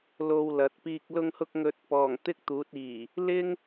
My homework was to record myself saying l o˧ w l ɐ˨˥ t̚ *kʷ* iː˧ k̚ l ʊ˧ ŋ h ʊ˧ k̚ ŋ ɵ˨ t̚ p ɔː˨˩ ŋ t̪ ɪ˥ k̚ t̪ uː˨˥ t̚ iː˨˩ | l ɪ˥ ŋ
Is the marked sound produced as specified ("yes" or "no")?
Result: no